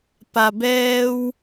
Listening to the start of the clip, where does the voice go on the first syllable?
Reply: low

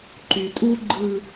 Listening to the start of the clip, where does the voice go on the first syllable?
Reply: low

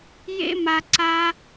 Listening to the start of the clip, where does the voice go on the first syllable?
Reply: high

